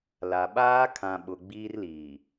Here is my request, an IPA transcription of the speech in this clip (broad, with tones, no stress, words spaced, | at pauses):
la˨ ɓaː˦kʰã˨ ɓʊ˨ɡ͡biː˦rliː˨